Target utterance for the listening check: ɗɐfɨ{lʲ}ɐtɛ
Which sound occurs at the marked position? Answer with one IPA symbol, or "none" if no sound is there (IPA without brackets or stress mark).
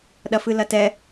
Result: l